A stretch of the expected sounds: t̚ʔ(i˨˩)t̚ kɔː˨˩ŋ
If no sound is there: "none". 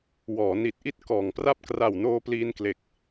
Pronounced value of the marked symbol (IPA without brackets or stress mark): i˥˩